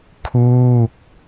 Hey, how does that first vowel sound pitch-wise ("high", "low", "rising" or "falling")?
falling